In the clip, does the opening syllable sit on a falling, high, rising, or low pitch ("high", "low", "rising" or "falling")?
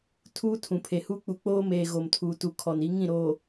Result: high